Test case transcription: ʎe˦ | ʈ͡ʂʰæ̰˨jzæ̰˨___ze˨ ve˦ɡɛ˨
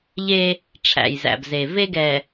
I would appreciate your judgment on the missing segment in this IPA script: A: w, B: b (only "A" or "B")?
B